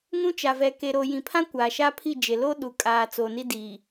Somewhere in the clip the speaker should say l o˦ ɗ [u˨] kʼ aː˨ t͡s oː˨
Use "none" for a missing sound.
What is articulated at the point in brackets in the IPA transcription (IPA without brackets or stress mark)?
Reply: u˨